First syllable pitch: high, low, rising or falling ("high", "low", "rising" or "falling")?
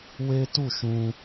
high